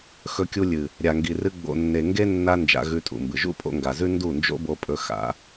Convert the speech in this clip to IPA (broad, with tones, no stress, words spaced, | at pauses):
xɵ˧kʲu˧lʲɨ˨ | ɾʲa˨ŋɡi˨rɨ˧ ɡ͡bo̰˨nːe˨ ŋɡe˦nːa˧ nd͡ʒa̰˧ɣʉ˧tʼṵ˨mbɨ˨ ʒṵ˦pʼo̰˧ŋɡa˨zʉ˦ ndu˦˨nd͡ʒo̰˦bo˧pʼɵ˧ xa̰˨˦